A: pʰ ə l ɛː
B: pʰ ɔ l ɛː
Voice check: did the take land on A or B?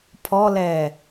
B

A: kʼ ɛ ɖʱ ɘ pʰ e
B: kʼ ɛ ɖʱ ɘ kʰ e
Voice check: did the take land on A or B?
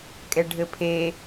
A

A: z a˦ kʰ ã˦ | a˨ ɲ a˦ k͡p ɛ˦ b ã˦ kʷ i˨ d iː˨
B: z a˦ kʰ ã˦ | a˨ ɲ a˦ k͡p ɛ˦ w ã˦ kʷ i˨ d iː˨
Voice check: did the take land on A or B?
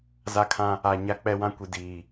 B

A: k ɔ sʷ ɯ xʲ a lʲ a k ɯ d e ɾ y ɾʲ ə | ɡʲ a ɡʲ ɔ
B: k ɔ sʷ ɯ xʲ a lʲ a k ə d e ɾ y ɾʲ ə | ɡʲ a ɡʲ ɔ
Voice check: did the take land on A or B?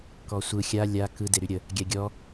A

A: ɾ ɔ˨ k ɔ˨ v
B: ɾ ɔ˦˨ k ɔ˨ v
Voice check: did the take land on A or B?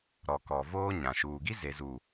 A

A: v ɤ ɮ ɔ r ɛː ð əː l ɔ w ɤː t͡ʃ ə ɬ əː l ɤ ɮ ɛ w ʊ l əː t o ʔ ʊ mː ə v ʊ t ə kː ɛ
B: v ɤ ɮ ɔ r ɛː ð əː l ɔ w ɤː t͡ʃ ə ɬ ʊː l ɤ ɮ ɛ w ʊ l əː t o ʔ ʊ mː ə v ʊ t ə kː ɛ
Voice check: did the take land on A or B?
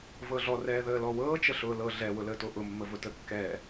B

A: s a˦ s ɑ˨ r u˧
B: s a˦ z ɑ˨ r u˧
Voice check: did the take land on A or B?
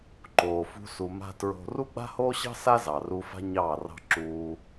B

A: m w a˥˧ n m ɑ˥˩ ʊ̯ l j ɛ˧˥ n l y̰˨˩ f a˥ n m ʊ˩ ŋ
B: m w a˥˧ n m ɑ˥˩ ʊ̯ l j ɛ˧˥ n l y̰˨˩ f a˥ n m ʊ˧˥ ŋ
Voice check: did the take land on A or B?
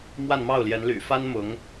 B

